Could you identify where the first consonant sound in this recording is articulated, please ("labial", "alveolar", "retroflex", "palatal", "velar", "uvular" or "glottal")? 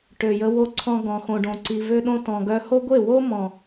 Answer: retroflex